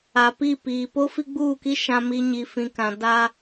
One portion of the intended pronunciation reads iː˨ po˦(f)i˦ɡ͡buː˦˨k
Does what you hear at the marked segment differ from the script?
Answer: no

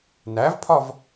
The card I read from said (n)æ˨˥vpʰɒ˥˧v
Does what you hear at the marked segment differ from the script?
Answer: no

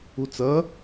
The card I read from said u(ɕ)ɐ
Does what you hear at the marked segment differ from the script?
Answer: yes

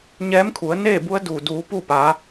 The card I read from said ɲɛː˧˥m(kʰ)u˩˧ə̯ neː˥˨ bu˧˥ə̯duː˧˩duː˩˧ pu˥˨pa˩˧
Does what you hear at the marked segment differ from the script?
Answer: no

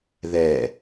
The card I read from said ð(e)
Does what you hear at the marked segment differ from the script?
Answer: yes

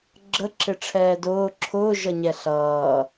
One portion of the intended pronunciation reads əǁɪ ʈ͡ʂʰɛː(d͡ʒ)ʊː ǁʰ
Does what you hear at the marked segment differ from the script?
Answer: yes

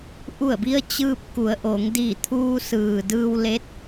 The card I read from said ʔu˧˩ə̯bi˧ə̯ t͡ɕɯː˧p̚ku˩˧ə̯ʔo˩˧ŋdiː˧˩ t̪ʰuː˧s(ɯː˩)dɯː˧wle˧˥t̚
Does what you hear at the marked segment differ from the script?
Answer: no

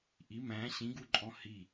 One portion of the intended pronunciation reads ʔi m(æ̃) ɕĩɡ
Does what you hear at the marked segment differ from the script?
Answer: no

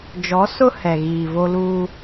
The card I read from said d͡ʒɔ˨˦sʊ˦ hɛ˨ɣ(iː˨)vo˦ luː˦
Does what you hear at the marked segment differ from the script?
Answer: no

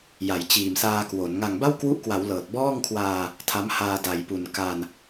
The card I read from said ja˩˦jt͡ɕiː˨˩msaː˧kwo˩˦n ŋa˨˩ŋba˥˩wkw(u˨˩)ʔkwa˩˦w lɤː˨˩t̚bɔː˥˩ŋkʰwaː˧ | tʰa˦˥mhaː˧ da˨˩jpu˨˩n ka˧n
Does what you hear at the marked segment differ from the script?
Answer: yes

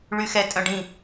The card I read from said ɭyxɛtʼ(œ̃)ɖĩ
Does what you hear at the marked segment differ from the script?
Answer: no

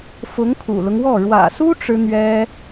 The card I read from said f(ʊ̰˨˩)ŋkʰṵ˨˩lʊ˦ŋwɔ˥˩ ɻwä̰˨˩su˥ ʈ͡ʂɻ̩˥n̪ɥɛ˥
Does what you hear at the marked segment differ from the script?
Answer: yes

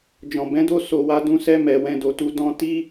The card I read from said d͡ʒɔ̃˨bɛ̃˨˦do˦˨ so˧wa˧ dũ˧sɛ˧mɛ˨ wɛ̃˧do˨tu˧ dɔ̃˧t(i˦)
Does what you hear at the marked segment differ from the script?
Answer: no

